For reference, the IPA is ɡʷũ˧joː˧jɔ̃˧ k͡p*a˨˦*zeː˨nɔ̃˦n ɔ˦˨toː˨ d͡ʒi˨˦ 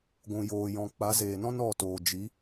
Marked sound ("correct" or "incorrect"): correct